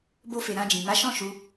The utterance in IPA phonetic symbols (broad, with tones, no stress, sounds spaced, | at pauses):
b o˧ f e˨ ɾ ã˧ d͡ʒ ĩ˨ m a˨˦ ʃ ɔ̃˦˨ ʃ u˧